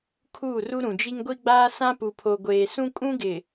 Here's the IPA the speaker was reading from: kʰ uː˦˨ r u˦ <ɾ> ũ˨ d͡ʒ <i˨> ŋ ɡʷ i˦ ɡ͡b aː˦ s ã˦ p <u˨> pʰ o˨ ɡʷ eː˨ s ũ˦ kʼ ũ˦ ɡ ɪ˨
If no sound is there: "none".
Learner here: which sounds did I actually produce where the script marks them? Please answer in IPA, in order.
ɾ, i˦, u˨

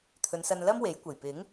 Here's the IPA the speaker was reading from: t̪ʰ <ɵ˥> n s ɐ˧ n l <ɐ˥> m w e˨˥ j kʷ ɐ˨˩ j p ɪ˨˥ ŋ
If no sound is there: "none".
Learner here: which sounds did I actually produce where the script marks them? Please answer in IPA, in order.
ɵ˨˧, ɐ˥

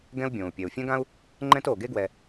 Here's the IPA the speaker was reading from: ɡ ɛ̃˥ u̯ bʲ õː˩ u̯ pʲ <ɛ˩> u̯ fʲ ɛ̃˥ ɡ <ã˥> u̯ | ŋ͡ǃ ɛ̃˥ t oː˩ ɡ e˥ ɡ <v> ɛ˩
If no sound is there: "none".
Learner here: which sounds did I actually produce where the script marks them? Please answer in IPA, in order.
ɛ˩, ã˥, w

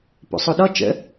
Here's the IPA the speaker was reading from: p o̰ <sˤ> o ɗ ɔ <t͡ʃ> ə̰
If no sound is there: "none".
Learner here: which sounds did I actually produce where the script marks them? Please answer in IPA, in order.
sˤ, t͡ʃ

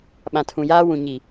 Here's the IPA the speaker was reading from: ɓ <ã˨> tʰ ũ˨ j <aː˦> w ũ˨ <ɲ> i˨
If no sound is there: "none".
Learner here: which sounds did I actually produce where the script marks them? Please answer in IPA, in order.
ã˨, aː˦, ɲ

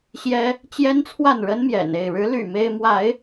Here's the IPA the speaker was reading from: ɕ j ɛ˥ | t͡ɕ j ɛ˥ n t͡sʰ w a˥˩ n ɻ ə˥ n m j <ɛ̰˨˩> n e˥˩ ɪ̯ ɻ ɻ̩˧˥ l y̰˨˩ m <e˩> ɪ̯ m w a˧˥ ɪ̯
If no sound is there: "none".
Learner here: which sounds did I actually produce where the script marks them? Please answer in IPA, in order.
ɛ̰˨˩, e˥

